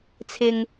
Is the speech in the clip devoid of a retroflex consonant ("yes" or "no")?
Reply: yes